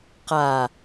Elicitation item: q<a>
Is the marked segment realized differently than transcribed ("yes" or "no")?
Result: no